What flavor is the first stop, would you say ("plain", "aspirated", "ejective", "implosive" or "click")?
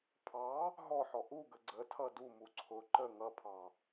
aspirated